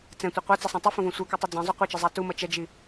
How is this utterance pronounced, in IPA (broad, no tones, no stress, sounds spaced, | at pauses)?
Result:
t͡s ɛ̃ tʷ e qʷ a t͡s ʌ sˤ ẽ tˤ i f õ v õ sʷ ɛ k ɯ tˤ ɯ d͡z ɛ̃ zˤ o qʷ ɛ t͡ʃ ʌ zˤ a t u m ʌ t͡ʃ ɛ d͡ʒ i